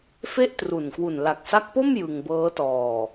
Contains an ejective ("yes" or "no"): no